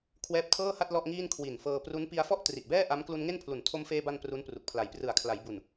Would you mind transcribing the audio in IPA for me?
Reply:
kʰ w ɛː˦˥ p̚ tʰ ɤː˥˩ h a˥˩ t̚ l ɔ˥˩ ʔ ŋ iː˥˩ n kʰ w i˨˩ n f ɤː˧ p r u˦˥ n p i˧ a̯ f ɔ˥˩ ʔ t r i˨˩ ʔ b ɛː˥˩ ʔ a˦˥ m k l u˧ n ŋ e˥˩ n pʰ l u˨˩ n tʰ o˧ m f eː˧ b a˧ n p r u˦˥ n p r u˨˩ k̚ pʰ l a˨˩ j p r ɯ˨˩ a̯ kʰ l a˩˦ j b u˨˩ n

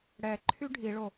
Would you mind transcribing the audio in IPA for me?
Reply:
ɽ ɛ ǃʰ y ɖʱ i ɭ o

